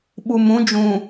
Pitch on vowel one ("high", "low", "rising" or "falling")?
low